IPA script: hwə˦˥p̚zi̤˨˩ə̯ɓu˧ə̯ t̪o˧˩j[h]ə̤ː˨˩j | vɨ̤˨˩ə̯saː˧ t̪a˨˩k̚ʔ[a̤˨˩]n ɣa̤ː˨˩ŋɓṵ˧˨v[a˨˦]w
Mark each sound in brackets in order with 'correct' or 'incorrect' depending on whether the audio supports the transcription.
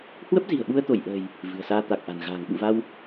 incorrect: ʔ, correct, incorrect: a˧

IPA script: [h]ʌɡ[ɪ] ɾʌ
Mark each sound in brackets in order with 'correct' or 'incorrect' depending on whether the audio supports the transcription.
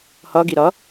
correct, incorrect: i

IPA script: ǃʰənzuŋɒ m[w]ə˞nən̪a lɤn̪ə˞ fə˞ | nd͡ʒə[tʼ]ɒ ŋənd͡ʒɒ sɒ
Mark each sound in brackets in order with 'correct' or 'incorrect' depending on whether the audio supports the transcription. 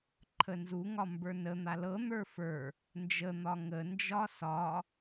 incorrect: b, incorrect: n̪

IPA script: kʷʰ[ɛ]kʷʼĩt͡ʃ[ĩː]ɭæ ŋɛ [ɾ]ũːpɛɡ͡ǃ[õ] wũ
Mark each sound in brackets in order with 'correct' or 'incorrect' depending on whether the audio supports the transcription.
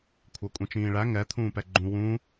incorrect: æ, correct, incorrect: t̪ʰ, incorrect: ũ

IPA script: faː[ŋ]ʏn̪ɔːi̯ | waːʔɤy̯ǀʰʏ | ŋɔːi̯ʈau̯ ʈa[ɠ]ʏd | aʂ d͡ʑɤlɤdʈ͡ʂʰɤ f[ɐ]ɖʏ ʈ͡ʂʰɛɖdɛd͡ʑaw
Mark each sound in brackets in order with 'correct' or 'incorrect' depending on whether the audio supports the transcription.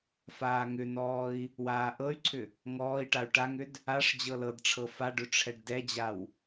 correct, incorrect: ŋ, incorrect: a

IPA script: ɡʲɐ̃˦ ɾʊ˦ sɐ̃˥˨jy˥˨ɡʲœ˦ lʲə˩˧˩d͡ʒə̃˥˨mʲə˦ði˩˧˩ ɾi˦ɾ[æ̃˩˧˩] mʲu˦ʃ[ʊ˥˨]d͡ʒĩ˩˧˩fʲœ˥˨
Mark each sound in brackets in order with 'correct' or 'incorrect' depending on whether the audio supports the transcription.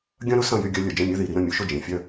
incorrect: ə̃˩˧˩, correct

